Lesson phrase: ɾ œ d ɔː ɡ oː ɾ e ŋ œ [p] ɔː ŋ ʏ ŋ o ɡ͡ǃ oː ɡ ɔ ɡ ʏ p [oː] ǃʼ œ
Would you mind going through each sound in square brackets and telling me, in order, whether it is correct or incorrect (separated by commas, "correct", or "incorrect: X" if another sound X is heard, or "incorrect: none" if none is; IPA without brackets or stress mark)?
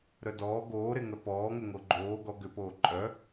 correct, correct